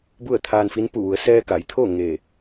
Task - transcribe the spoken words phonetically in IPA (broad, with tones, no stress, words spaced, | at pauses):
bu˥˨ə̯t̪ʰaː˧nfi˧˥n pu˧˩ʋu˩˧ə̯ sɛː˧ka˩˧jt̪ʰoː˥˨ ŋe˧˩